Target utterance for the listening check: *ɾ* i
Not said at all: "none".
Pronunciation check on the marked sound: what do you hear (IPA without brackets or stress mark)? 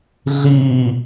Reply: ɮ